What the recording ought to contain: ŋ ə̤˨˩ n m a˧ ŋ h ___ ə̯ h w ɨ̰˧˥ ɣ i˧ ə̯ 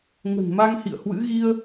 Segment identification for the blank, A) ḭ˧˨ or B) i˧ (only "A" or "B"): A